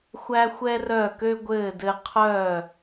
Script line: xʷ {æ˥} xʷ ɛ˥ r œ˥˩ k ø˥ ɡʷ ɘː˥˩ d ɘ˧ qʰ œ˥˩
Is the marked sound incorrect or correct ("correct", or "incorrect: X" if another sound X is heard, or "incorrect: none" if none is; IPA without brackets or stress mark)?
correct